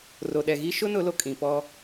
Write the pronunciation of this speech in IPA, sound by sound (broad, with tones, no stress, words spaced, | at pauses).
ro˨ɗɛ˨ɣi˦ ʃʊ˦nʊ˨˦ lo˨kʼĩ˨ pɔ˦